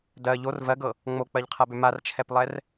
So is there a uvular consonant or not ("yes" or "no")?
yes